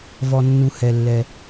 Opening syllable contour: low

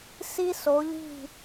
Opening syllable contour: high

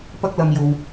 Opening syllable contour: high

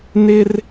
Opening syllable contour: high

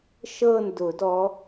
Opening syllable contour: falling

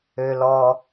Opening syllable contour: low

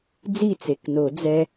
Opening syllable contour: falling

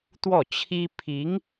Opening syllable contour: falling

